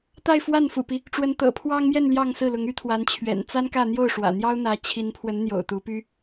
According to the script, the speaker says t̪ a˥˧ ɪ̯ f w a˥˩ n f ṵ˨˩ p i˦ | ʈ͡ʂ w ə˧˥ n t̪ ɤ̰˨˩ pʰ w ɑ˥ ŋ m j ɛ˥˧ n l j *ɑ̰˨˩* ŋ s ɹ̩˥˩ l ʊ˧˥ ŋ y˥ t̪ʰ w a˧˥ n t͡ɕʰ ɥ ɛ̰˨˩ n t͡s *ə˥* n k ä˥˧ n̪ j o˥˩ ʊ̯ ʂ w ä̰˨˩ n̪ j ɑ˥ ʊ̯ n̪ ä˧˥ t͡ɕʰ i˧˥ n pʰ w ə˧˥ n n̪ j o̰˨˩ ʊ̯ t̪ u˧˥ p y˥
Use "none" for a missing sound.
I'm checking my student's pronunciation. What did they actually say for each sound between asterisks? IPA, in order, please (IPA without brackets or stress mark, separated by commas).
ɑ˥˧, a˥